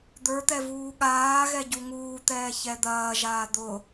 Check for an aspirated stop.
absent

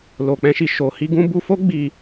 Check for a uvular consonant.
absent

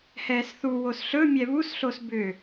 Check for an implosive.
absent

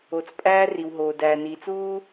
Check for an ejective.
present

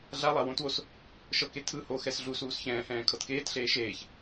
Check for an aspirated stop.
present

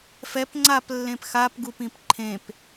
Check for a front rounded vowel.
absent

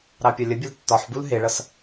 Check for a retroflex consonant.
present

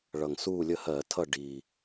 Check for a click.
absent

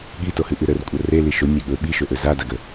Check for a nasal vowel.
absent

